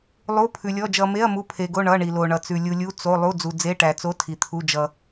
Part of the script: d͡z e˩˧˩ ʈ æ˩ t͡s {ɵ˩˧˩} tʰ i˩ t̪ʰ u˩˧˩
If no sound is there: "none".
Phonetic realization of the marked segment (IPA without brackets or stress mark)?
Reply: o˩˧˩